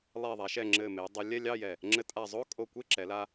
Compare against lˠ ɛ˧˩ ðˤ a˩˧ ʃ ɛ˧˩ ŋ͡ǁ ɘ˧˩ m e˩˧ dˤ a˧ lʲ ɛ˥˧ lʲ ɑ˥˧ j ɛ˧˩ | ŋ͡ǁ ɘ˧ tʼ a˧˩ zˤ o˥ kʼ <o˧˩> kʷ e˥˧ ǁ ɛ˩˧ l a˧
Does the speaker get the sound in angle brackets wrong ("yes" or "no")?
no